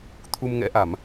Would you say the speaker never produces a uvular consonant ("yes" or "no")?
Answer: yes